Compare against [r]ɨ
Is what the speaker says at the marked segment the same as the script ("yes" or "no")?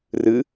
yes